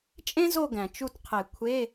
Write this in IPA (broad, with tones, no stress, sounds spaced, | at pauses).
t͡ʃʼ ẽ˥ z o˦˨ ɡ æ̃˩ t͡ʃ u˦˨ t qʰ e˨˩˦ kʷʰ e˧˥˧